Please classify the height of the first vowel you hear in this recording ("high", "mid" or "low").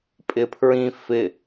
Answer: high